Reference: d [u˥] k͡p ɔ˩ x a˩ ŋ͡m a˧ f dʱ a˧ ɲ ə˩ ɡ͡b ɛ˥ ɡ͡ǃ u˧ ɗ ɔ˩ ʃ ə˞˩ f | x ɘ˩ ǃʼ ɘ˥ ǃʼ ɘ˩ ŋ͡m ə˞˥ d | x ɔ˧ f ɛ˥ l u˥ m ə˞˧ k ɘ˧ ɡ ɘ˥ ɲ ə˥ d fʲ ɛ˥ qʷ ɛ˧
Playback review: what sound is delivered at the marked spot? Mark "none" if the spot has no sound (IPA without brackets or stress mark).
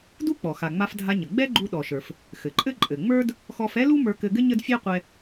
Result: u˥